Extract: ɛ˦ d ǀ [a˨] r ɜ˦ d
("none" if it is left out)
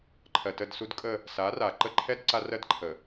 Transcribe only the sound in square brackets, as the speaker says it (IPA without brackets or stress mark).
a˦